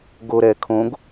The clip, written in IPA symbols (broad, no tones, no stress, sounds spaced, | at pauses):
ɡ o ɾ ɛ kʰ õ ɡ